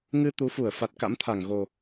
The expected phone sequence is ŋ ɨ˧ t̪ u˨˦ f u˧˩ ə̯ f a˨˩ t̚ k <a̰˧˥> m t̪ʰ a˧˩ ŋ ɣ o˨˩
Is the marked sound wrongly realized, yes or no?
no